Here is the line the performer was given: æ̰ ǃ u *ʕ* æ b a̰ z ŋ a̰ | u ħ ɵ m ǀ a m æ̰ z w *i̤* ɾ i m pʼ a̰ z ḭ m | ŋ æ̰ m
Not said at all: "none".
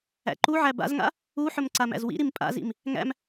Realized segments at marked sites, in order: ʕ, ḭ

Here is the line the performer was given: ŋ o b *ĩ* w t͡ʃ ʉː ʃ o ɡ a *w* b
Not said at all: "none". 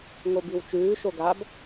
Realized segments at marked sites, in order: i, none

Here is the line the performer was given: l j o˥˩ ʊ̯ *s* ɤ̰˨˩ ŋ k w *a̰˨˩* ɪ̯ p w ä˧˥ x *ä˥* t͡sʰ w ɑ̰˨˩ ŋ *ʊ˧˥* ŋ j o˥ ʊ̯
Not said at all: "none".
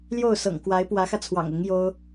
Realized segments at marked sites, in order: s, a˧˥, ä˧, ʊ˧˥

